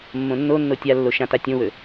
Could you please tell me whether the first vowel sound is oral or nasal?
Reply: nasal